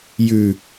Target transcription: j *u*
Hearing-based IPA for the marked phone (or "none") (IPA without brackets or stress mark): ʉ